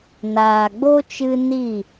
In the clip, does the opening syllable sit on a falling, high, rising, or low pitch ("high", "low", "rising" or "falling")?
low